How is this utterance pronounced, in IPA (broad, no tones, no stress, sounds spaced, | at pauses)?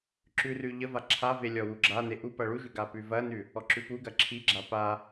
ǁ ʉ r ʉ ʎ ə v a ǁʰ a v e lʲ ɔ w u ɡ͡ǁ a n e ʔ u p ɐ ɭ u ʒ ʉ ɡ a p ʉ v ɐ n ʉ | ɔ ǁ ʉ p u ɡ ɐ ǁʰ i ɡ͡ǁ a p a